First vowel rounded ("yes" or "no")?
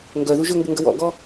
yes